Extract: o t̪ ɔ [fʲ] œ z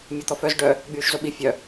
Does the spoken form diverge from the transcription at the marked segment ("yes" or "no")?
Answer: yes